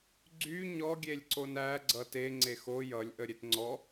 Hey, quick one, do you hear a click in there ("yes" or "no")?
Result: yes